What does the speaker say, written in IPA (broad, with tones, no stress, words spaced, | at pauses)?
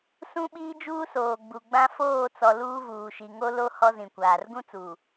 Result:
sũ˦ɓiː˦ d͡ʒuː˦soː˨ ɡ͡bu˨ɡ͡bã˦ foː˦˨t͡sɔ˨ luː˦vuː˨ʃi˨ ŋo˦lo˦ hɔ˦zĩ˨kʷaː˨r ɡũ˦t͡suː˨